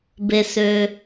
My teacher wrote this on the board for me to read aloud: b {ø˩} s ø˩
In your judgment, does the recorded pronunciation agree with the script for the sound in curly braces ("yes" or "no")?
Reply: no